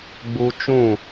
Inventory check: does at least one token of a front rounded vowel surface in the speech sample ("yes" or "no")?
no